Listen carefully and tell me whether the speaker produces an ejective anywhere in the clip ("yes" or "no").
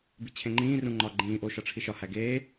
no